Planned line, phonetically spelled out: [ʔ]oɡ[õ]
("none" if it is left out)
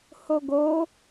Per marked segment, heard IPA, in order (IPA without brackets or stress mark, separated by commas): h, o